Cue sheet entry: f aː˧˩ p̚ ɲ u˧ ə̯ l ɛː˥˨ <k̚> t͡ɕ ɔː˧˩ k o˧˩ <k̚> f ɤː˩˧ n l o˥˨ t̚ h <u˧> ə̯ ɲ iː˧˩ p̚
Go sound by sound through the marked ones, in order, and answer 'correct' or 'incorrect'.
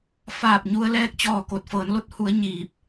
correct, incorrect, incorrect

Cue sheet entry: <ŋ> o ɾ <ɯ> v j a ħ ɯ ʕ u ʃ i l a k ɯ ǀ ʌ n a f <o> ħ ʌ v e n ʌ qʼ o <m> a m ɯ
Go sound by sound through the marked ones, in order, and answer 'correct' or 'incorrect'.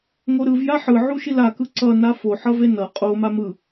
correct, correct, correct, correct

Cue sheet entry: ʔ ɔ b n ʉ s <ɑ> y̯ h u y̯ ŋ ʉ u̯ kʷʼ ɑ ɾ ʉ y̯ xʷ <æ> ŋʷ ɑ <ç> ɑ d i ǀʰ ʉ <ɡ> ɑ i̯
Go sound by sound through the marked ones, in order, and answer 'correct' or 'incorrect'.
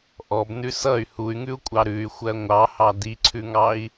incorrect, incorrect, incorrect, incorrect

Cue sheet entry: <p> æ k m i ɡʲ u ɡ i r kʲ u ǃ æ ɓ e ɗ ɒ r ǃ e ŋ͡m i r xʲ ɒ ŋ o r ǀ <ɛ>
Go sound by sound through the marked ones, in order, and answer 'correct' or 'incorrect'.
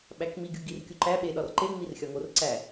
incorrect, incorrect

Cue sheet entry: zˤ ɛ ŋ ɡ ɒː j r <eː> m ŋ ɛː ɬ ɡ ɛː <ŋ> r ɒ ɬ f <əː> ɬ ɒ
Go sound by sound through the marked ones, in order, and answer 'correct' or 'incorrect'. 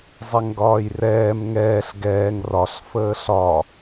incorrect, correct, correct

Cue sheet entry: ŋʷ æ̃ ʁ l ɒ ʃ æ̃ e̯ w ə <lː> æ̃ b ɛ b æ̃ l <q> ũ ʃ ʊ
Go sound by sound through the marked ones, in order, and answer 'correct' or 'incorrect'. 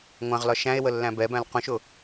correct, correct

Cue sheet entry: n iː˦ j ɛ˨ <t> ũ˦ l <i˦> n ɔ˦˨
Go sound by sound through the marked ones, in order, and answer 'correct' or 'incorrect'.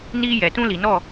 correct, incorrect

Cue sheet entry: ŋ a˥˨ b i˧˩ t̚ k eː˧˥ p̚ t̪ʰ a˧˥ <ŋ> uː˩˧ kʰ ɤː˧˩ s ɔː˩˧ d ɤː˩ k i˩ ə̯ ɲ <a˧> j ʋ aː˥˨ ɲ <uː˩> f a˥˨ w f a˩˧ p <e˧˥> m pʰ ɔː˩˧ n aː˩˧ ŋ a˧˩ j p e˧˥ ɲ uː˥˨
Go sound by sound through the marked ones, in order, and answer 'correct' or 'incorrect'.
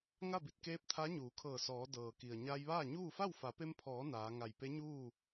incorrect, correct, incorrect, incorrect

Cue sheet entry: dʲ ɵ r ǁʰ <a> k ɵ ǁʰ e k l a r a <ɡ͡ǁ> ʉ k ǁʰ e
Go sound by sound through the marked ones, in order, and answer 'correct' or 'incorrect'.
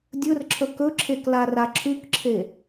incorrect, incorrect

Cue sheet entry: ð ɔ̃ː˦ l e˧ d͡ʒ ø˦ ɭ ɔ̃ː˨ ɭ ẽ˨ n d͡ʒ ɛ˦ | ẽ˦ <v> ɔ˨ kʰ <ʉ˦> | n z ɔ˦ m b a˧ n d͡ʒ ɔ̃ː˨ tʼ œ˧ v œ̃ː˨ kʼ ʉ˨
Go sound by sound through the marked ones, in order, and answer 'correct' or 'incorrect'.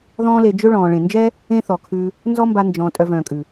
incorrect, incorrect

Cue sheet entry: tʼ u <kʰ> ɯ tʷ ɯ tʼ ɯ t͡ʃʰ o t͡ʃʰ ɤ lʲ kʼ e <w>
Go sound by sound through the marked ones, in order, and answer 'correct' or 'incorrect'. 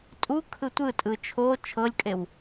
correct, correct

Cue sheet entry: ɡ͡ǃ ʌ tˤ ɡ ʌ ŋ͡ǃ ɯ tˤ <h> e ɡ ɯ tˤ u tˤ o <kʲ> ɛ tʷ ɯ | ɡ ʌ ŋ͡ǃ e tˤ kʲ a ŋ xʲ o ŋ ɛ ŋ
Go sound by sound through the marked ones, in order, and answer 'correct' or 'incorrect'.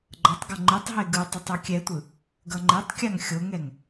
incorrect, correct

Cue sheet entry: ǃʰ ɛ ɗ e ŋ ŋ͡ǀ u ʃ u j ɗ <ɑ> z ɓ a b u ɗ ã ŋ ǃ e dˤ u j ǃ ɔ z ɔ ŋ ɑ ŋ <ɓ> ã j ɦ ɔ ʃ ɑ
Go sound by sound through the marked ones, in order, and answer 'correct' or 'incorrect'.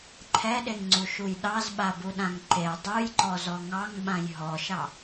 correct, correct

